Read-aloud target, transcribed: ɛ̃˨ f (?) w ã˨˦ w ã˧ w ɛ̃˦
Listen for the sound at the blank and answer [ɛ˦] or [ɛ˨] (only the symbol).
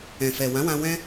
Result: ɛ˨